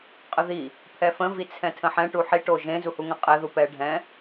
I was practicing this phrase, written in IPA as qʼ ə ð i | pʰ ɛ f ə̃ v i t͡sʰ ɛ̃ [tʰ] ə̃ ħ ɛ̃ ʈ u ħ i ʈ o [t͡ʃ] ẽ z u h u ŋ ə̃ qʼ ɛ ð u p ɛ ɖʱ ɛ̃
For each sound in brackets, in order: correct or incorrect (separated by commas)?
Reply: correct, incorrect